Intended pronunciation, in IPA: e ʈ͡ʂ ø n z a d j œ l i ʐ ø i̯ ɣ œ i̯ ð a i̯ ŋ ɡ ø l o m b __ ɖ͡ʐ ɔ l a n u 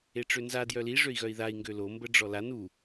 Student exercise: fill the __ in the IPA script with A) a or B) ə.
B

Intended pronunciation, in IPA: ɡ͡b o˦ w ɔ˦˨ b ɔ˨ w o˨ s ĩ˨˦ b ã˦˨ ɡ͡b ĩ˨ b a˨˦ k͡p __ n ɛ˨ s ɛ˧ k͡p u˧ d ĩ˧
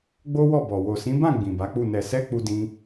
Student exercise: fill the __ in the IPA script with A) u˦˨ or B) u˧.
A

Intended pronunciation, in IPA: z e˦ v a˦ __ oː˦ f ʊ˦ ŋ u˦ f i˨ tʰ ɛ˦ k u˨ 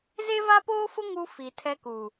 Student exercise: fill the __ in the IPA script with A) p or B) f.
A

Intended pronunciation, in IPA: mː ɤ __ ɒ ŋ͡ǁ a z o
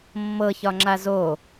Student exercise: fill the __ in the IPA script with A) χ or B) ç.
B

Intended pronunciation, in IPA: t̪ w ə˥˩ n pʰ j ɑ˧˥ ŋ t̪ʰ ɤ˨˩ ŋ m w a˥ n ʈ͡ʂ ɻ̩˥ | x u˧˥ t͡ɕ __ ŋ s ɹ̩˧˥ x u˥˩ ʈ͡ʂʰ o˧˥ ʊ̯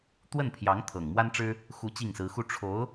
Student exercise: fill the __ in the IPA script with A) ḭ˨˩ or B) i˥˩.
B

